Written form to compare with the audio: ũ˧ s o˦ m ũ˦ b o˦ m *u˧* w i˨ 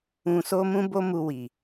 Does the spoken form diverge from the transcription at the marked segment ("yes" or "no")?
no